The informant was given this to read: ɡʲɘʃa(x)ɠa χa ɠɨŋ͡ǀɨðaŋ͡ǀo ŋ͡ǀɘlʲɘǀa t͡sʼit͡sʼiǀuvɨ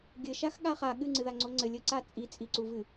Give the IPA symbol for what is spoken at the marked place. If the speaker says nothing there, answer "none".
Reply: x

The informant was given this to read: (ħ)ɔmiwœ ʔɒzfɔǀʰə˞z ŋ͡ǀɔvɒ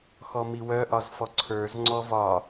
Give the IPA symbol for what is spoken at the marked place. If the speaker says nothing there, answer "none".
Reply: x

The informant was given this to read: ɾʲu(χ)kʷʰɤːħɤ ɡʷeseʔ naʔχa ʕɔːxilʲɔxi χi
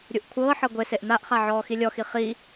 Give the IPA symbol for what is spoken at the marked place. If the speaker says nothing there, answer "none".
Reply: ʔ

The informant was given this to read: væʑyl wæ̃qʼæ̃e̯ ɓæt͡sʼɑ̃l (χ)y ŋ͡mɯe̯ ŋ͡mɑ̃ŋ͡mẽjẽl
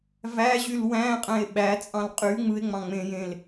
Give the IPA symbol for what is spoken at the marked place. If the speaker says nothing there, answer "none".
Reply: qʼ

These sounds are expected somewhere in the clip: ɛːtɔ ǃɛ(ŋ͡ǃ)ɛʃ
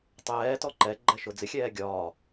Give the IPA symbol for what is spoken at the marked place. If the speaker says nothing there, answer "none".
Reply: ɡ͡ǃ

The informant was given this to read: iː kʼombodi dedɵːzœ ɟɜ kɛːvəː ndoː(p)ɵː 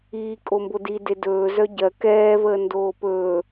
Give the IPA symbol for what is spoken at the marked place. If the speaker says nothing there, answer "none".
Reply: p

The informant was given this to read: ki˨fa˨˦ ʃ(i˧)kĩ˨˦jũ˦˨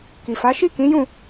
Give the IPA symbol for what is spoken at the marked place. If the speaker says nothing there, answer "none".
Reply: i˦˨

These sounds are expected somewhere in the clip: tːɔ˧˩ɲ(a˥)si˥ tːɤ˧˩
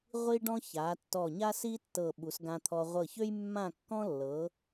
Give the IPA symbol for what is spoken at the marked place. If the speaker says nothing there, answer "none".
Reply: a˥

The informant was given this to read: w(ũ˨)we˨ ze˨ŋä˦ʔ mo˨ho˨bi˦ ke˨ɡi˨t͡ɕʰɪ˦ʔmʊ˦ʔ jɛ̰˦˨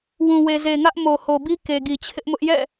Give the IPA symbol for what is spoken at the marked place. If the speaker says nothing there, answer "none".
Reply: ũ˨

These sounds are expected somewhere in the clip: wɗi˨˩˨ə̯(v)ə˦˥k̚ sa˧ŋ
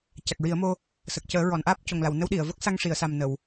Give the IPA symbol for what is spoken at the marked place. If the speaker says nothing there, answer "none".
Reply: v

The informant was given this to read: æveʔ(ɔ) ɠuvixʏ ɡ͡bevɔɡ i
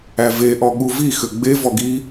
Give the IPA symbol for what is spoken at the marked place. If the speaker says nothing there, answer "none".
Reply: ɔ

